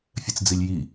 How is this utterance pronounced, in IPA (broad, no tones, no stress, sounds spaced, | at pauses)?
fʲ ɛ t͡s d͡z i lʲ j i